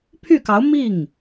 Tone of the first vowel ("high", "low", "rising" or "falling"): falling